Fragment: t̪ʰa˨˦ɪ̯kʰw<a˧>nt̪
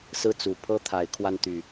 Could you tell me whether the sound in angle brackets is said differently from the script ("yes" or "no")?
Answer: no